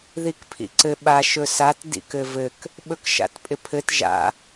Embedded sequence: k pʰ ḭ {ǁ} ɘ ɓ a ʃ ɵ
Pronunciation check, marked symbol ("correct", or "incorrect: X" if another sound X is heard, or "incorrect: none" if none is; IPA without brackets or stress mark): incorrect: ǀ